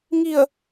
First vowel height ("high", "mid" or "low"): high